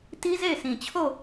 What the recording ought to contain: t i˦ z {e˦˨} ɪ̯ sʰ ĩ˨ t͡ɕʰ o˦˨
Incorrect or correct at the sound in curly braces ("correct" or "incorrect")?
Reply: correct